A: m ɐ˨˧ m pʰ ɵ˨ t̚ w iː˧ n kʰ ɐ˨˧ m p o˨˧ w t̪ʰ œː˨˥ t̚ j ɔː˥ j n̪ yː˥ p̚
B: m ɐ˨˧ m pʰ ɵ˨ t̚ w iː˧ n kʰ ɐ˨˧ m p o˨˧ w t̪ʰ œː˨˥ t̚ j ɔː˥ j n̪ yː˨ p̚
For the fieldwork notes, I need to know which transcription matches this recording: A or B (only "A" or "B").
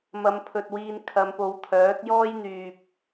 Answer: B